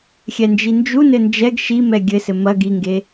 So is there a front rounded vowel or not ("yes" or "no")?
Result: no